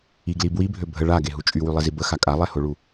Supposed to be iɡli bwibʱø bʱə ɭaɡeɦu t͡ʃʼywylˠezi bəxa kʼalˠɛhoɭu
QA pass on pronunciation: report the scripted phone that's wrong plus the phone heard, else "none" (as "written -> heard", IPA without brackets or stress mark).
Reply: none